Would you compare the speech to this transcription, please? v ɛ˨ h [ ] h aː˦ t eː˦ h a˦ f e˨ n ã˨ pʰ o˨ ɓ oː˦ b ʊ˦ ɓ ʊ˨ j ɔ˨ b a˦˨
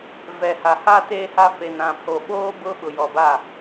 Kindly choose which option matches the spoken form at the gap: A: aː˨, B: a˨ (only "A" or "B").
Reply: B